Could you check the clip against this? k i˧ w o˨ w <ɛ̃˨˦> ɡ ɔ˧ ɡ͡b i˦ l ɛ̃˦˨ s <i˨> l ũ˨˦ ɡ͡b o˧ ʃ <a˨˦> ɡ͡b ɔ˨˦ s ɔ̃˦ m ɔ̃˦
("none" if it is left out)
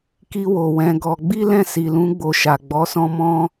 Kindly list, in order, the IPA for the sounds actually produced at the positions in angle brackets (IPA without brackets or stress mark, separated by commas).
ɛ̃˨˦, i˨, a˨